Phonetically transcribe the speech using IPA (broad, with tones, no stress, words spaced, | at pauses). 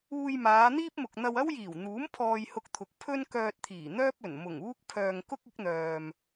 uː˧jmaː˨˧n̪iː˥p̚mʊ˨k̚ n̪ɐ˧wɐ˥wjiː˨˩wn̪uː˨˥m pʰɔː˧jhʊ˧k̚t̪ʰʊ˨k̚ pʰɵ˥n kœː˧t̚t̪ʰiː˨˩ n̪œː˥p̚ɵ˨˩n mʊ˨˩ŋ uː˥k̚ pʰœː˨ŋ kʊ˥k̚ɪ˨˥k̚n̪œː˨m